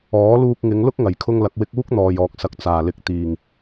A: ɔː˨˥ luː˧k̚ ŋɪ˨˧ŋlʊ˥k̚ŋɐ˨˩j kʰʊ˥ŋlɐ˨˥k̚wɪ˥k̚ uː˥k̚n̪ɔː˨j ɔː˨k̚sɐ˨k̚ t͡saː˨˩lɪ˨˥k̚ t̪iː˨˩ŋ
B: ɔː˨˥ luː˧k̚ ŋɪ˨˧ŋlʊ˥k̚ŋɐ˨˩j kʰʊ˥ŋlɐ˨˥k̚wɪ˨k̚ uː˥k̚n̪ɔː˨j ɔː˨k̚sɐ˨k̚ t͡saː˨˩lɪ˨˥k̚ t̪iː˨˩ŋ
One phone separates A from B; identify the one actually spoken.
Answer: A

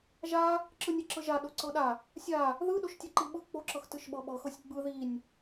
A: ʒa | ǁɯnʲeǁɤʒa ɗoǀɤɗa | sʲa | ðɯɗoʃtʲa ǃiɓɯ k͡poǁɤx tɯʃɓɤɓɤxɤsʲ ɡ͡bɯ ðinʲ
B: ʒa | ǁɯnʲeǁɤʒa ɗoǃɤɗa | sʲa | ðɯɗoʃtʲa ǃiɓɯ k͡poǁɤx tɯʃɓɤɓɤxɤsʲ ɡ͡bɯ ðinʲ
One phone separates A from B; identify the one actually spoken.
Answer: A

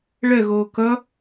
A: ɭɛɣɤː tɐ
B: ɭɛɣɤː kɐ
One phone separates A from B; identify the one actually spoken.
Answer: B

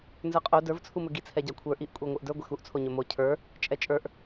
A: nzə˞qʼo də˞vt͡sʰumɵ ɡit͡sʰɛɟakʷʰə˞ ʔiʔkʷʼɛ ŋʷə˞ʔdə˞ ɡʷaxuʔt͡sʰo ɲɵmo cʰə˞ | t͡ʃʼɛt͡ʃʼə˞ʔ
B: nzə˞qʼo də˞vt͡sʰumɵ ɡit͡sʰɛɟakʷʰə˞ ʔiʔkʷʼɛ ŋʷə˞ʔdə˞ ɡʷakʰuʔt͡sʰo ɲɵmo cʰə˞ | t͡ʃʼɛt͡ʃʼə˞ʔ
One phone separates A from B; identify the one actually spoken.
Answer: A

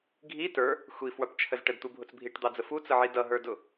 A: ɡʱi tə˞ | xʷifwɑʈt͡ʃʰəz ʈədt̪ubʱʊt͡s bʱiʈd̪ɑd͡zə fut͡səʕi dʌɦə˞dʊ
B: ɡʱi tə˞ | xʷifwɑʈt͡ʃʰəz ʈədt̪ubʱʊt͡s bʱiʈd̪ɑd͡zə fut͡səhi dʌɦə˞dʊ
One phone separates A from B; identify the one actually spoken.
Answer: A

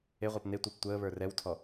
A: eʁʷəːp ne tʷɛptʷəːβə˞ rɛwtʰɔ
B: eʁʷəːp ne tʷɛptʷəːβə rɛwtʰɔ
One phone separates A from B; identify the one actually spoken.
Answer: A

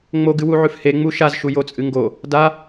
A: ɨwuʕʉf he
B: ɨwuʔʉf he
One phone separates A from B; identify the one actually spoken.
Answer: A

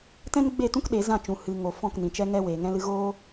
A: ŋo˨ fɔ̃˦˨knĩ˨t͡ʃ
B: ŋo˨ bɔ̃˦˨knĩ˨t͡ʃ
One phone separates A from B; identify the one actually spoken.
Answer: A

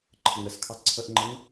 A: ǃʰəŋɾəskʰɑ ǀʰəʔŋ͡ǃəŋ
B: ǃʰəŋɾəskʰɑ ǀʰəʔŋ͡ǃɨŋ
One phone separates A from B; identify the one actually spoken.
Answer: A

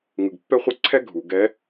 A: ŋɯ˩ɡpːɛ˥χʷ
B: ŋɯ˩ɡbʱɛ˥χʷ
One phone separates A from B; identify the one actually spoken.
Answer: A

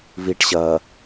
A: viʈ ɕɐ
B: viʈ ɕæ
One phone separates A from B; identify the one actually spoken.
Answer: A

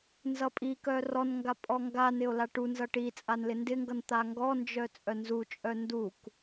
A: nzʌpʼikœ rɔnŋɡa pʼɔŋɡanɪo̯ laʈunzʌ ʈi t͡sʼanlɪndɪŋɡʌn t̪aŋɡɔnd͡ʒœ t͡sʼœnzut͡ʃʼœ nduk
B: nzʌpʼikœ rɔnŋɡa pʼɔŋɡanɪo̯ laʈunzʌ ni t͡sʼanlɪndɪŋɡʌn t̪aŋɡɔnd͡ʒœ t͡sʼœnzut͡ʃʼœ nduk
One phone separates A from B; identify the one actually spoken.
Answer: A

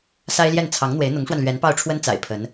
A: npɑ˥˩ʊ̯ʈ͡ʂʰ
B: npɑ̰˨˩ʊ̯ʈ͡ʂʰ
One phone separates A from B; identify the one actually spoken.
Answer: A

